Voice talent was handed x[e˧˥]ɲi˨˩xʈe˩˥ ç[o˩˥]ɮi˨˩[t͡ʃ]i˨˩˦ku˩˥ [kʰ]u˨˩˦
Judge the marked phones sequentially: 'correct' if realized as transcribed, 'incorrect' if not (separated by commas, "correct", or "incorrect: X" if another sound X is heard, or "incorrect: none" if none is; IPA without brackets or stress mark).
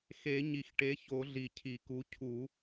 incorrect: e˨˩˦, incorrect: o˨˩˦, incorrect: cʰ, incorrect: cʰ